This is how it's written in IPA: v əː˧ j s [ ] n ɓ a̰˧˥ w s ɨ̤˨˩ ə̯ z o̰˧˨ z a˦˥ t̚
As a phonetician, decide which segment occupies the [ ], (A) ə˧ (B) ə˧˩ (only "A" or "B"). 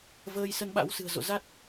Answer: A